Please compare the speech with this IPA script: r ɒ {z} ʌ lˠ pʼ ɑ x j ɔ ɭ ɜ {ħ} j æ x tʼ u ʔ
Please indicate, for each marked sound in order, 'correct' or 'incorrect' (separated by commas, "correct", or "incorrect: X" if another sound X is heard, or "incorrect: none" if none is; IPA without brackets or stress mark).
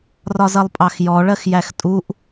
correct, incorrect: x